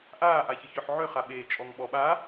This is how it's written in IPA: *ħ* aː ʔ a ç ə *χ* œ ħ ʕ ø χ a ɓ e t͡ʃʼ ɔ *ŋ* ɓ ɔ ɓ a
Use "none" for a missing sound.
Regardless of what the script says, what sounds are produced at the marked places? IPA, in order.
ʔ, ç, ŋ

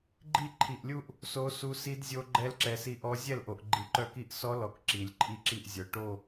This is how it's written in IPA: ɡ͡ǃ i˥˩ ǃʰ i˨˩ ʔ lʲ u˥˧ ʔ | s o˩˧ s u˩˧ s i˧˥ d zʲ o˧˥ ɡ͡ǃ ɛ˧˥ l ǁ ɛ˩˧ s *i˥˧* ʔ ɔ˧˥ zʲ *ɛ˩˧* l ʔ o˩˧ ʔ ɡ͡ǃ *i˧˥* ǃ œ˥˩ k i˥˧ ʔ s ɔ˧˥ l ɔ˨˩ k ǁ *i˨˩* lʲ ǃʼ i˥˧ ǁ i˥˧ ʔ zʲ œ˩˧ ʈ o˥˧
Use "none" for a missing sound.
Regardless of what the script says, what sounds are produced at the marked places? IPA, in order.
i˧˥, ɛ˥˩, i˨˩, i˨˩

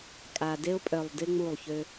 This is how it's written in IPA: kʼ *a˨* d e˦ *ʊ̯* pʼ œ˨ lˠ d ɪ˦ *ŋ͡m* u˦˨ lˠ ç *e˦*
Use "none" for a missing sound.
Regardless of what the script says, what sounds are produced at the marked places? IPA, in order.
a˨, ʊ̯, ŋ͡m, ø˦

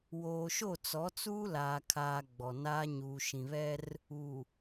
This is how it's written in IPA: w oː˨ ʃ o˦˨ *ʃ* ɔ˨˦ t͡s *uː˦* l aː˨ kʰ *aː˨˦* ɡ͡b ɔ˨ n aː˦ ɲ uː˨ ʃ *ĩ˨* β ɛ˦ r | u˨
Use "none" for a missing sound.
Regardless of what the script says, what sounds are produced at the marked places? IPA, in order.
t͡s, uː˦, aː˨, ĩ˨

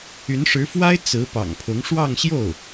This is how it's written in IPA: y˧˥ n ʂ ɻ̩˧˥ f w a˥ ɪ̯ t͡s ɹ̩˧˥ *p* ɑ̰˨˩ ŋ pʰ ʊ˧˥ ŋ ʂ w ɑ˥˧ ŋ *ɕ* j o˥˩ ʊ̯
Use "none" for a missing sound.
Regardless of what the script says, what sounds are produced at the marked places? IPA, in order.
p, ɕ

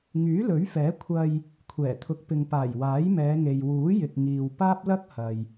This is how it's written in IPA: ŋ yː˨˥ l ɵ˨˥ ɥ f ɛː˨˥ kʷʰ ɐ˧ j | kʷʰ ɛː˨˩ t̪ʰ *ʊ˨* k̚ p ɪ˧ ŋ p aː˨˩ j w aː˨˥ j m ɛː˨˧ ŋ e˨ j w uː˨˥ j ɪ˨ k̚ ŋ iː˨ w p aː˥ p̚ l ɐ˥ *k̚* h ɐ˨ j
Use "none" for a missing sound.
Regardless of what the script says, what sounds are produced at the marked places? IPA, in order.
ʊ˧, k̚

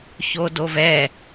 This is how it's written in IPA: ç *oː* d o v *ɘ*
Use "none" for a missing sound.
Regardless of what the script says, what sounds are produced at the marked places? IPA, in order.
o, ɛ

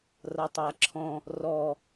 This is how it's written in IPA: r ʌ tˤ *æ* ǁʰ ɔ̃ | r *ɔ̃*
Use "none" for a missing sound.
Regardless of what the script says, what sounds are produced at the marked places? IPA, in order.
æ, ɔ

